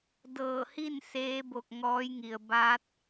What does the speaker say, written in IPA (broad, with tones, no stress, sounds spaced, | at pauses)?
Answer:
d ɤː˧˩ h i˥˨ n s eː˧˥ b o˧˩ k̚ ŋ ɔː˧˥ j ŋ i˩ ə̯ b aː˧˥ t̚